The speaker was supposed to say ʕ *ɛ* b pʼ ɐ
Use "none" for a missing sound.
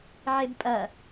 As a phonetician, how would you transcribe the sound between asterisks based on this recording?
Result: e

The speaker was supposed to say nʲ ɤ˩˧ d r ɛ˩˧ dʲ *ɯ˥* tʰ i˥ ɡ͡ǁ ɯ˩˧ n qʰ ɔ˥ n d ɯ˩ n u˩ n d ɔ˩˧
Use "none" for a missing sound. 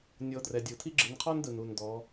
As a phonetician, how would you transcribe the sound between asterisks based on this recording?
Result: ɯ˩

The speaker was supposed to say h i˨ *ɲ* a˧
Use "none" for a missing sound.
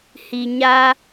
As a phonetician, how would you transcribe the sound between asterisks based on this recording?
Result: ɲ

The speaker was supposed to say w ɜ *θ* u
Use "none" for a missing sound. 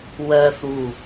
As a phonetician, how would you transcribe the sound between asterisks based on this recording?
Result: θ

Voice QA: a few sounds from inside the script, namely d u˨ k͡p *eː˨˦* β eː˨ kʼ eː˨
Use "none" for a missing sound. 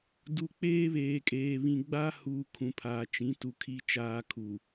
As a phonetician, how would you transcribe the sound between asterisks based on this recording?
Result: eː˦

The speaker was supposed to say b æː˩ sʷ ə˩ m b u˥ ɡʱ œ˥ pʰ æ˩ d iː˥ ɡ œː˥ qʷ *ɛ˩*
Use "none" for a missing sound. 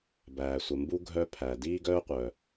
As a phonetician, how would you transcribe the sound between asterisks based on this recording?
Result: œ˩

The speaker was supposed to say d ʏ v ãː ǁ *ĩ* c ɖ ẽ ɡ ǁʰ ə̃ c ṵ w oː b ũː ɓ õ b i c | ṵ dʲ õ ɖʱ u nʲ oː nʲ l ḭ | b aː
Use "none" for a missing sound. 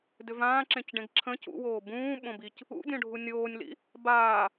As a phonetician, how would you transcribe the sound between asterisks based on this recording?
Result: ẽ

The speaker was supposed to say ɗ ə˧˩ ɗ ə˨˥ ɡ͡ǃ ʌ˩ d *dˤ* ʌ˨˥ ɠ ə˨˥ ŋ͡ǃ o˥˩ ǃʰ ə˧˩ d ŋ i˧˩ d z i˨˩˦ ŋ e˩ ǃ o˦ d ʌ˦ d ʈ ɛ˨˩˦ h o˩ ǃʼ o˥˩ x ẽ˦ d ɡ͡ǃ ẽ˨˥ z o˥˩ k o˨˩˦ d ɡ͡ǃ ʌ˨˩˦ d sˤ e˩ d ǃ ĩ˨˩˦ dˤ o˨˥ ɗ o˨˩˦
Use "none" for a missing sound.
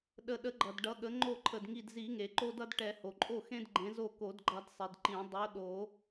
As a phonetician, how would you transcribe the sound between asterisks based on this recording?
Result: ɖ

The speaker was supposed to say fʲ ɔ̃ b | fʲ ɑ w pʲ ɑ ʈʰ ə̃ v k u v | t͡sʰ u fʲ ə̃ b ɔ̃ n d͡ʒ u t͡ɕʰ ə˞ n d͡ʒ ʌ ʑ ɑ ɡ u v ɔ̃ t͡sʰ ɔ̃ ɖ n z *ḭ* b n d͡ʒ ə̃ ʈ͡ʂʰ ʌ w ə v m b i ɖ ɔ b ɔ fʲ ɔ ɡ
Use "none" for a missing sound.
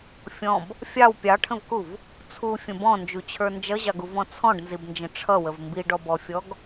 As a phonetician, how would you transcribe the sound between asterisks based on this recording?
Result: i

